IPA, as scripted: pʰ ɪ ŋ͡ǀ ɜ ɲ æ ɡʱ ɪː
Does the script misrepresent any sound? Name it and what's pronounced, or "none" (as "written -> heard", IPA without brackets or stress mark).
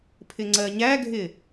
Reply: none